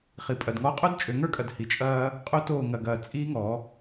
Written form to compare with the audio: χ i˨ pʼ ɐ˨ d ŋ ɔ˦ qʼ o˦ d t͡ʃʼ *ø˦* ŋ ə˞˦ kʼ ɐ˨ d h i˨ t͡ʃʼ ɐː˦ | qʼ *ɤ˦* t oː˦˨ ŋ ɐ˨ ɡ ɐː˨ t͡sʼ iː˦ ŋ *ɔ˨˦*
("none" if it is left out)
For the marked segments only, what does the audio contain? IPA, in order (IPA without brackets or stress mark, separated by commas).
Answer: ø˨˦, o˦, ɔ˨˦